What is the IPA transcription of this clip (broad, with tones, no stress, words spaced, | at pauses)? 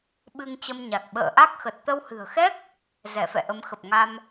ɓɨ˧ŋt͡ɕə˧mɲa˨˩k̚ ɓə̰ː˧˨ʔa˦˥k̚xə˨˩t̚ t̪ə˧whɨ̤˨˩ə̯xɛ˦˥k̚ | zɛ˧˩fɛ̰˧˨ʔə˨˦m xə˨˩p̚ŋa˧m